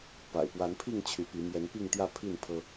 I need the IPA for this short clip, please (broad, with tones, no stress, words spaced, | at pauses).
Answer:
pa̰˨˩ɪ̯pwa˨˦npʰi˥˨ŋ t͡ɕʰy˨˦pi˨˦ mjɛ˨˦npi˥˨ŋt̪jä˥˨ pʰi˥˨n pʰɤ˦